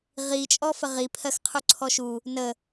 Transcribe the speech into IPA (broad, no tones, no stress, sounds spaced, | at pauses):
ʁ i t͡ʃʼ ɔ f ə ʁ i pʰ ɜ x qʰ u ǀʰ ɔ ʃ u | n ə